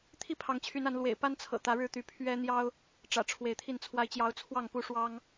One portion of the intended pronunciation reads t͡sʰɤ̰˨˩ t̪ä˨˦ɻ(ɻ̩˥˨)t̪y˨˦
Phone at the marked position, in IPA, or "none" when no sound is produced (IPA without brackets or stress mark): ɻ̩˥˨